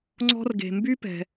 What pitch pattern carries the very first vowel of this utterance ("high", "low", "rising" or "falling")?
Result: high